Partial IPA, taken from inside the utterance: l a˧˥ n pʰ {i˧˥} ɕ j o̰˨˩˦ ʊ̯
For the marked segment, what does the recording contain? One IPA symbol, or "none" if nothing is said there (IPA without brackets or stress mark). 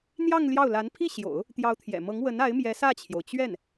i˥˩